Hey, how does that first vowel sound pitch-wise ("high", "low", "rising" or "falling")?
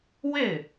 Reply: falling